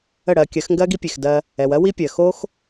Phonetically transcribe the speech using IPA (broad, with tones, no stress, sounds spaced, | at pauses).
ə˦˨ ɽ ɜ˧ kʲ ɜ˨˦ x ŋ ɡ ɜ˦ ɡ i˦ pʲ e˨ x d ɜ˧ | ɛ˨ w ɜ˦ w i˦ pʲ ɜ˨ x o˦ x